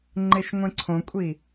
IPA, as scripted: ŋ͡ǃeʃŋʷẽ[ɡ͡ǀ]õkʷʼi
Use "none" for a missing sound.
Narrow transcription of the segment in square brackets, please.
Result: ǀʰ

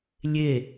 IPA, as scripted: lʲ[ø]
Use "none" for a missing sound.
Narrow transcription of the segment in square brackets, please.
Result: e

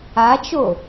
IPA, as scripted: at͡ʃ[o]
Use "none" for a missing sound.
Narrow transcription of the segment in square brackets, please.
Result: o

